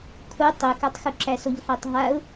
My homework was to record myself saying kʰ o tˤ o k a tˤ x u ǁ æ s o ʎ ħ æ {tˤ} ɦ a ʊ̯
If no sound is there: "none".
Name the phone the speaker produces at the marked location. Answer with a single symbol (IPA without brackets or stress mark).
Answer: tˤ